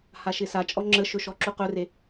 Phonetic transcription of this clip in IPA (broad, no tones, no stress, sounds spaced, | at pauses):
h a ʃ ɪ s a t͡ʃʼ ɔ ŋ͡ǁ ə ʃ ɵ ʃ ɔ ǁ u q ɵ r e